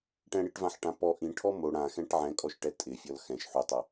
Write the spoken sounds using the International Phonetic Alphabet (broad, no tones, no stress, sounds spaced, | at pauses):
ʈ ɛ̃ ɽ i ʈ v ã ħ ʈ ã p ɔ ʔ ĩ ʈʰ ɔ m o ɽ ã x ɛ̃ ʈ ʕ ɛ̃ kʼ ɔ ʃ ʈ ɛ tʼ ɪ fʲ ɔ l x ɛ̃ ʃ ħ u tˤ a